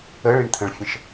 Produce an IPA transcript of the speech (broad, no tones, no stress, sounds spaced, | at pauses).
ə ɭ i ɳ t̪ʰ ə̃ ɭ fʲ ə̃ ʃ